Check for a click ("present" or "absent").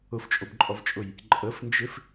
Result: present